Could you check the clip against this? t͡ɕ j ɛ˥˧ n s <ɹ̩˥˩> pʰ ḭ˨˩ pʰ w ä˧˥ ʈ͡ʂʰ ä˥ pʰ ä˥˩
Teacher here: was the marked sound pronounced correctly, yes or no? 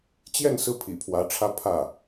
yes